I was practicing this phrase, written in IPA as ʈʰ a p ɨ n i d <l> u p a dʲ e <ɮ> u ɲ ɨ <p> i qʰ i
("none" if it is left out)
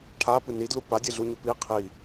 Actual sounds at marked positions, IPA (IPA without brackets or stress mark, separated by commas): l, ɮ, p